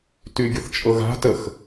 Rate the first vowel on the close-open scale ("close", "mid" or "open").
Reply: close